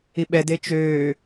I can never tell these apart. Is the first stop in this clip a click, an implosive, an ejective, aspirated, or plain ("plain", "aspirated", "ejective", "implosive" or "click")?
implosive